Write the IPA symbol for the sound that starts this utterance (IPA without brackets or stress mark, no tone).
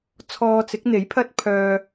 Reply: t͡sʰ